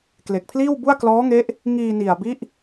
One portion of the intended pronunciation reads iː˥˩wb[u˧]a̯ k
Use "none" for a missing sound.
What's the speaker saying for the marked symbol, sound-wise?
u˥˩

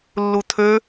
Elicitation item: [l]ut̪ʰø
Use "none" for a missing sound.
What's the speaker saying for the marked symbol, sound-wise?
lː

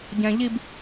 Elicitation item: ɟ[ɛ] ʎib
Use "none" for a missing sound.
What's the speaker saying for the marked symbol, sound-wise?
ɛ̃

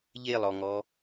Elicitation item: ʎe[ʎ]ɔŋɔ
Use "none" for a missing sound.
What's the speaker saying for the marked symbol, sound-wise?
lˠ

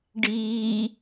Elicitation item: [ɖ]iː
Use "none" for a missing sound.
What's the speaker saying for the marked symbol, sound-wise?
ɖ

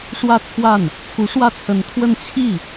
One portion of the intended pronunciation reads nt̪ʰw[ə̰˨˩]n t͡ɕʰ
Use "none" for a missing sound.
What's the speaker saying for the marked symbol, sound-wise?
ə˥˧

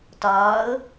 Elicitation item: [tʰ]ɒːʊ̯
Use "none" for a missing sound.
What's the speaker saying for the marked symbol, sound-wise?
t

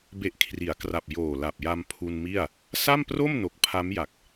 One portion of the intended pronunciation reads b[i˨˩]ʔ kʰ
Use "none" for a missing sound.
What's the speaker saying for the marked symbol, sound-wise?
e˨˩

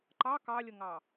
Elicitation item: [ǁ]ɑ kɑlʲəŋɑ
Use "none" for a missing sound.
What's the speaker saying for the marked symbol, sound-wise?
ǃ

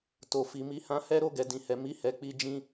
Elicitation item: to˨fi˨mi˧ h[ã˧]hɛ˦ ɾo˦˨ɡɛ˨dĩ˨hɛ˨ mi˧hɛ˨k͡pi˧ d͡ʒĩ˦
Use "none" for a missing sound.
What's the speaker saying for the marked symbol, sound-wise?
ã˧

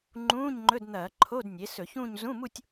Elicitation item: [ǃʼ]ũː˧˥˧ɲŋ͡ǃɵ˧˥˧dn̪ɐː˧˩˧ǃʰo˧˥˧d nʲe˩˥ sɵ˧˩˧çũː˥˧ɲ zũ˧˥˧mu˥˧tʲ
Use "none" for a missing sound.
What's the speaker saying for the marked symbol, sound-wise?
ŋ͡ǃ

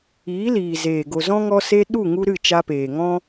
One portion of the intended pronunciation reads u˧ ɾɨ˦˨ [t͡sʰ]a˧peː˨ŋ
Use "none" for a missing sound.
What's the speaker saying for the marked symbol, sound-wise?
t͡ʃ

